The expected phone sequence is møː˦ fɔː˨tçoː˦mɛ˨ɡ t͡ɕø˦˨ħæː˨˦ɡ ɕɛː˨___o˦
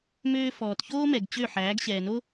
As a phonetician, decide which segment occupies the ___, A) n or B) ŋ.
A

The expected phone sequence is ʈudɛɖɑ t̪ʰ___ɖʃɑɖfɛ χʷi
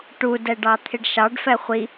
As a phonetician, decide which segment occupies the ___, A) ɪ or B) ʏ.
A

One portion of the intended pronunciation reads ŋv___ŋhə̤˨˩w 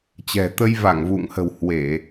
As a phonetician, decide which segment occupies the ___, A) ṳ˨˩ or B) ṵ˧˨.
B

